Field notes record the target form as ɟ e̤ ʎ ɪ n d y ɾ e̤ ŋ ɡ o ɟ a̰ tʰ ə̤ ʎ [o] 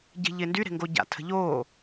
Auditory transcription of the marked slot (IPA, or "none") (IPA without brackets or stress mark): oː